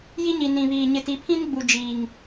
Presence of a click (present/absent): absent